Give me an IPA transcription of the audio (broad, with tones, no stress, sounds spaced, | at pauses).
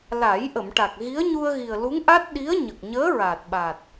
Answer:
l aː˨˩˦ j ʔ ə˨˩˨ m ʈ a˨˩ k̚ ɣ i˧˥ ə̯ ɲ u˧ ə̯ ɣ i˨˩ ə̯ l u˧˥ ŋ ʔ a˦˥ t̚ ɗ i˧˥ ə̯ ɲ ə˨˩ k̚ ɲ əː˧˥ ɹ a˨˩ t̚ ɓ a˨˩ t̚